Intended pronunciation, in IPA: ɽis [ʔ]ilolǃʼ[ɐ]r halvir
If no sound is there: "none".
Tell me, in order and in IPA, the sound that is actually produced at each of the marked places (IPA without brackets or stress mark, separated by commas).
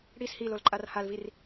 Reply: h, a